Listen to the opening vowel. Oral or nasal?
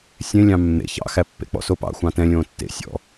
nasal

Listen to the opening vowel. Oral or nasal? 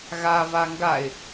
oral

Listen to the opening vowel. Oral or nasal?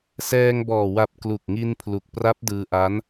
oral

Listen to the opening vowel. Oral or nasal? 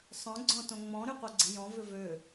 nasal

